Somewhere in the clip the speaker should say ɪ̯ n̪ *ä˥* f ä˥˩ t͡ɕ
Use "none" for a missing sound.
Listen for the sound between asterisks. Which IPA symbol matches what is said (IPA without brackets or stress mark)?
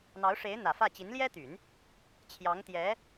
ä˨˩